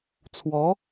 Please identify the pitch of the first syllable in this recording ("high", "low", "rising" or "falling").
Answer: rising